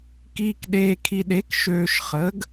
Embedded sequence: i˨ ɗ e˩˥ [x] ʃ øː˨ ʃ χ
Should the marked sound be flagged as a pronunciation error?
yes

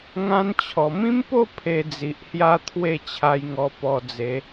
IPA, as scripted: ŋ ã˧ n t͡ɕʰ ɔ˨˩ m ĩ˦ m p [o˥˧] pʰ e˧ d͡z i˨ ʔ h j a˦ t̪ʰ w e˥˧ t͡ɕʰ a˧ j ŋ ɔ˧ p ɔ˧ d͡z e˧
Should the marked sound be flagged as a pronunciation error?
no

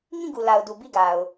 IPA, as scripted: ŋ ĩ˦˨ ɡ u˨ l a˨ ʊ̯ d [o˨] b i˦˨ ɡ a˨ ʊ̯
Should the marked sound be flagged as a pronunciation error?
yes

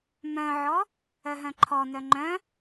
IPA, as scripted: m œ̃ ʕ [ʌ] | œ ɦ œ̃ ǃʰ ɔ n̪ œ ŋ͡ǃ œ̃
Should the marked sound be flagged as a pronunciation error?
yes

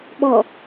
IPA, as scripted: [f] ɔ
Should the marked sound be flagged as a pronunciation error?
yes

